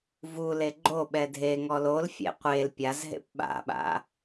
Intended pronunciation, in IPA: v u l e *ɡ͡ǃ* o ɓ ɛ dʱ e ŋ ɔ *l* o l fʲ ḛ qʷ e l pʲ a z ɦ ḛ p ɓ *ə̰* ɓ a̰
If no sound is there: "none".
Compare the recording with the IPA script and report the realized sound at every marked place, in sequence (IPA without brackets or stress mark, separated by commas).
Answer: ɡ͡ǃ, l, a̰